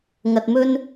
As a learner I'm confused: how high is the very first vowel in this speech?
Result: low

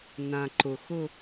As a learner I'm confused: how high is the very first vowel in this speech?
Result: low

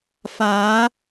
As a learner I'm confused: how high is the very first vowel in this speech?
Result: low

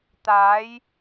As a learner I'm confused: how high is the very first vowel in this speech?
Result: low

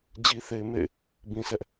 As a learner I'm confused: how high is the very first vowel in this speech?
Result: high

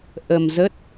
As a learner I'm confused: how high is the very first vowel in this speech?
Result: mid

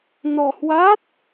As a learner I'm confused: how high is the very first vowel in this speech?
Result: mid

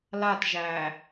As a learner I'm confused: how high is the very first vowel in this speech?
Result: low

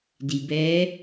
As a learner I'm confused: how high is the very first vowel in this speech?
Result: high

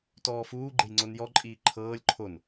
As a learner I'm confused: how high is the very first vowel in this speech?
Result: mid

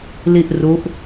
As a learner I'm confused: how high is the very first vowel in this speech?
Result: high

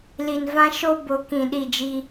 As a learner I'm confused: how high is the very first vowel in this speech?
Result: high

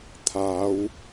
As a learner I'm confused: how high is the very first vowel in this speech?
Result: low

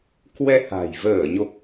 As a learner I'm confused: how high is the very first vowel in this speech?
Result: mid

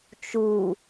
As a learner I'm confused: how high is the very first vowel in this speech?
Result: high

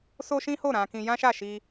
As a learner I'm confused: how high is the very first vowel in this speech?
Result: mid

